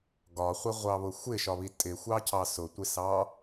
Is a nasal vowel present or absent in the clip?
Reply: absent